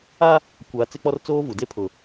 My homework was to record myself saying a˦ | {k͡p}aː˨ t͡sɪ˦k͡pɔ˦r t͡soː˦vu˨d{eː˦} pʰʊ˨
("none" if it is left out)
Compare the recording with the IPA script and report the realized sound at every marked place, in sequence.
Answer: kʷ, e˦

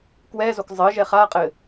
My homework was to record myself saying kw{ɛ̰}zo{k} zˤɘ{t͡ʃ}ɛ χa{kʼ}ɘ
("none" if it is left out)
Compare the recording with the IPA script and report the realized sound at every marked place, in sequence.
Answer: ɛ, k, ʒ, qʼ

